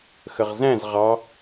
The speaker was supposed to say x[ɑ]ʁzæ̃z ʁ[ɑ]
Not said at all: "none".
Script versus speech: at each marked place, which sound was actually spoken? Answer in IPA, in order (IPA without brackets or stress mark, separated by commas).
ə, ɑ